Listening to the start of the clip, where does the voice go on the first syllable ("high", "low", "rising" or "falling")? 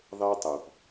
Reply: high